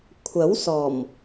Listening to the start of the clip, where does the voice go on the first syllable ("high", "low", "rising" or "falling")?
rising